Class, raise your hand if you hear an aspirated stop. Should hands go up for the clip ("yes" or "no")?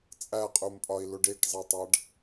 no